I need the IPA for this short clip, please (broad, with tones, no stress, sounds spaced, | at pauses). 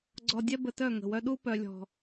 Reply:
ɡ͡ǀ ɔ˨ dʲ ɛ˦ b ə˨ t œ˦˨ ŋ ə̤˨ w œ˦ ɗ u˦ p œ˨ lʲ ɔ̤˨